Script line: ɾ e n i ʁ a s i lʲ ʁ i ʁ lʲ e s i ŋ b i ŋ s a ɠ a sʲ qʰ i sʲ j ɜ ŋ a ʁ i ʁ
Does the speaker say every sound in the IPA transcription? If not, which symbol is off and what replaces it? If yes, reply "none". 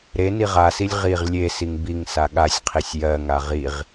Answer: none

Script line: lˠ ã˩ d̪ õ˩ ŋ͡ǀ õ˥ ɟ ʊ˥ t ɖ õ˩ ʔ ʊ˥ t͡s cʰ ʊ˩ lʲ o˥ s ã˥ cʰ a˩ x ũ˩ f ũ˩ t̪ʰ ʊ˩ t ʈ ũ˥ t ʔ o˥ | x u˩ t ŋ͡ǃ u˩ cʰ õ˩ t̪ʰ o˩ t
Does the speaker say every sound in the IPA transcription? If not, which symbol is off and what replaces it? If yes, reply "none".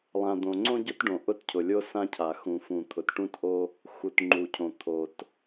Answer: t͡s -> t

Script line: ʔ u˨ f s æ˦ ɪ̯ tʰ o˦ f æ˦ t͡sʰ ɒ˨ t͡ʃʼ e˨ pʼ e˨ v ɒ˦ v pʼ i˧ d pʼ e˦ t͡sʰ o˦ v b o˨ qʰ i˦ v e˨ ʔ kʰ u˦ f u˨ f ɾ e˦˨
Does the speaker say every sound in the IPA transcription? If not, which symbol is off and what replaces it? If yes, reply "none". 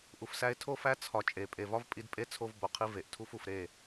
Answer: kʰ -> tʰ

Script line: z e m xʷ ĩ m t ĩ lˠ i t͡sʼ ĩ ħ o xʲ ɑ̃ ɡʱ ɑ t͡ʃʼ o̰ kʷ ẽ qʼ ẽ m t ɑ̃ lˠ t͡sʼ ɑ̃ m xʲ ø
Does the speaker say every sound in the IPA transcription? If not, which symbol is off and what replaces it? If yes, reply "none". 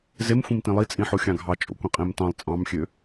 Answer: none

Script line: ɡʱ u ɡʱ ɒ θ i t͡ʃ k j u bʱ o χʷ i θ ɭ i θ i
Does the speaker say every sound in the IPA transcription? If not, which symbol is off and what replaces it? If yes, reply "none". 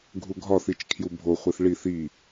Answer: k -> kʰ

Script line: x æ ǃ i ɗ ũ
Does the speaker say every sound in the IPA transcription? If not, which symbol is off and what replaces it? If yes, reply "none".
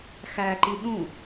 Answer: none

